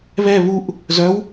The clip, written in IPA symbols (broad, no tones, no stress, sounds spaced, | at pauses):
β ɛ β u ʔ | z œ w